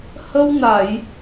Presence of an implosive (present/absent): absent